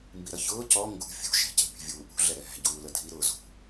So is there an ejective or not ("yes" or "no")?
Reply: no